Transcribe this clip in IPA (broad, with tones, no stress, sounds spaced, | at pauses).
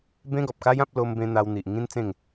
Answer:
b ẽ˦ ɡ ɔ˨ p̚ k a˦ j ã˦ p̚ l o˧ m b ẽ˧ n̪ a˧ w n̪ i˨ ʔ ŋ ĩ˦ n t͡s ẽ˥˧ ŋ